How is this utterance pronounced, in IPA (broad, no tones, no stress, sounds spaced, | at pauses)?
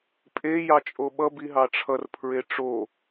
pʼ e j ɑ t͡ʃʼ o ɓ ʌ b i ɦ ɑ ʈ͡ʂʰ ʌ r pʰ ɹ e ʈ͡ʂ o